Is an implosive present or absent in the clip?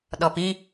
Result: present